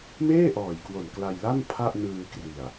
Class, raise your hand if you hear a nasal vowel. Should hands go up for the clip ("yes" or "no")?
no